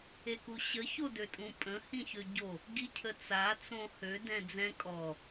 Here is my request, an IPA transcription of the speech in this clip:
e k u ɕ ə ç o d ø tʼ ũ pʼ ə̃ h ĩ ç ø ɟ o | ɡ i cʰ ə t͡s a t͡s õ h ø d ɛ̃ d͡z ɛ̃ kʼ ɔ

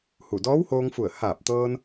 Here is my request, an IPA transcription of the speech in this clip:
h u˧˩ d ɔː˧˥ w h oː˧ ŋ f u˧˩ ə̯ h aː˧˩ p̚ t̪ ɤː˧ n

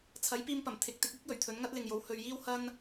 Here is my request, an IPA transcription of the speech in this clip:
t͡sʰ ɐ˨˥ j p iː˧ m p ɐ˨˩ m t̪ʰ ɪ˨˥ k̚ t̪ ɪ˨˥ k̚ iː˥ k̚ j ɵ˨˩ ɥ t̪ʰ ɵ˨˥ n ŋ ɐ˥ t̚ l ɪ˨ ŋ j o˨˥ w h ɵ˨ ɥ j iː˥ w h ɐ˥ n

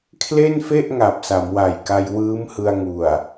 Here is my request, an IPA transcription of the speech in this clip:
kʰ l e˥˩ n f e˥˩ ʔ ŋ a˨˩ p̚ s a˩˦ m w a˨˩ j k a˧ j w ɯː˦˥ m h ɯ˧ a̯ ŋ u˨˩ a̯

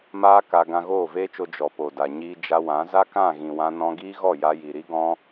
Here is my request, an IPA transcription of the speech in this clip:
m aː˦ k a˧ ɡ ã˧ ɣ oː˦˨ v eː˦ t͡ʃ o˧ d͡ʒ ɔ˨ p o˨ d a˨ ɲ iː˧ d͡ʒ a˧ w ã˨˦ z a˦ k ã˦˨ ɣ ĩ˨ w ã˧ n ɔ̃˧ ɡ iː˦ ɣ ɔ˦˨ j a˧ j i˨ ɾ i˦ ɡ ɔ̃˦

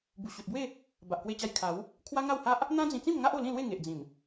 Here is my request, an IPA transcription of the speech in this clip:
b u˨˩ ɕ u˨ t̚ b w e˥˧ | b a˨ ʔ k w e˧ t͡ɕ a˧ j kʰ a˨˦ w | kʰ w a˦ ŋ a˥˧ w h a˦ ʔ | n̪ ã˦ d͡z ĩ˧ t͡s ĩ˥˧ m ŋ a˦ ʔ o˧ l ĩ˥˧ l w e˥˧ ŋ e˨ ʔ d͡z ĩ˨˩ m

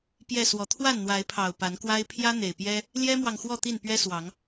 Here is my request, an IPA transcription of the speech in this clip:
p j ɛ˥˨ s w ɔ˨˩ t̪ʰ w a˥˨ n n̪ w a˨˦ ɪ̯ pʰ ɑ˨˩ ʊ̯ p a˨˦ n k w a˦ ɪ̯ pʰ j ä˦ n̪ e˨˩ ɪ̯ p j ɛ˦ | l j ɛ˦ m w ɑ˨ ŋ x w ɔ˥˨ t̪ i˥˨ n p ɥ ɛ˦ s w ɑ˨˦ ŋ

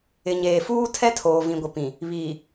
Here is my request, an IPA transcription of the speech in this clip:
ɪ˨ ɲ eː˨ f uː˦ tʰ ɛ˦ tʰ oː˨ v ĩ˨ ɡʷ ɪ˨ p ĩ˨ | β iː˨

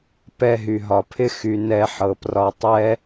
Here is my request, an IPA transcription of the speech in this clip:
p ɛ˧ ɦ y˨ ɦ ɒ˨ pʰ ɪ˦ x y˨ n ɛ˧ ħ ɤ˨ p r ɒ˧ tˤ ɛ˦

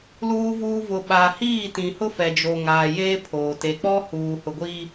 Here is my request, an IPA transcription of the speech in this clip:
l uː˨ v uː˨ v ʊ˨ ɓ a˨ h iː˦˨ t ĩ˨ h ʊ˦ f ɛ˨ d͡ʒ o˨ ŋ aː˨ j eː˦ pʰ oː˨ t e˨ k͡p ɔ˦ h uː˨ h ʊ˨ ɡʷ iː˦

